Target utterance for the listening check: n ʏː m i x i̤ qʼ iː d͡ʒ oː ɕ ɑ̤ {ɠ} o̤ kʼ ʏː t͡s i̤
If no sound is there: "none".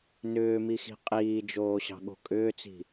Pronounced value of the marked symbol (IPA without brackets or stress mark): ɠ